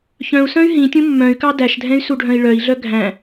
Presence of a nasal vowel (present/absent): present